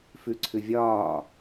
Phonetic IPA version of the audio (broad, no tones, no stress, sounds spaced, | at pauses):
f ʉ ǀʰ ʉ vʲ ɒː